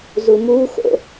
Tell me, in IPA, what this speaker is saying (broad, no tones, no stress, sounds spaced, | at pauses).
z u m u x o̰